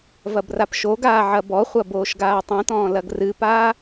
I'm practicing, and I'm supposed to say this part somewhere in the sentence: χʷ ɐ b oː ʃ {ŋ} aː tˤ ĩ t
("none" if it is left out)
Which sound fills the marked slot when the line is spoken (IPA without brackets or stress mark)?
ɡ